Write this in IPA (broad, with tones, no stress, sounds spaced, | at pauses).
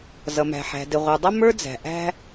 z ʌ˨ m æ̤˨ ħ æ̤˨ d ɪ˨ ʁʷ ə˞˨ dˤ ʌ˦ m ə˞˦ d͡z æ̤˨ ʔ æ̤˧